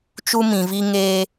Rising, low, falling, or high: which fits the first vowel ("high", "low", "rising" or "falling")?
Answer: high